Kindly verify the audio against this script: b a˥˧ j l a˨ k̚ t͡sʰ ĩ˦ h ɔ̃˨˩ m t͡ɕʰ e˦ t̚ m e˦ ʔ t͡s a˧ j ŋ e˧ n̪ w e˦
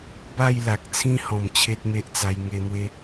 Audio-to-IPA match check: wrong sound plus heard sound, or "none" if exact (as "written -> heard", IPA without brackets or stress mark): none